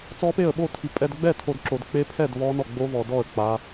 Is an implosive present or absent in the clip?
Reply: present